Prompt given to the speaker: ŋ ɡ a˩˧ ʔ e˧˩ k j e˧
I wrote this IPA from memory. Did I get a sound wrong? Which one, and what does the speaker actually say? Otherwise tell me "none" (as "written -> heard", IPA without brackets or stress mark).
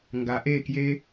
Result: none